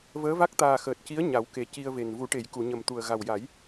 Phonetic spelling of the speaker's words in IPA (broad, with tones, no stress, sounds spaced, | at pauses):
v əː˧˥ v a˦˥ k̚ t̪ aː˨˩ x əː˨˩ t̚ c i˧˥ ə̯ ɲ a˨˩˦ w k e˨˩ c i˧ ə̯ v e˨˩ n v u˨˩˦ ʈ e˨˩˨ j k u˨˩˨ ɲ ə˨˩ m t̪ u˨˩ ə̯ ɣ a˨˩ w j a˨˩˦ j